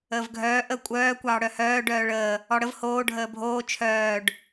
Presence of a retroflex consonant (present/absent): present